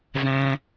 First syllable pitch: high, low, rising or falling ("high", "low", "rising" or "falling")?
low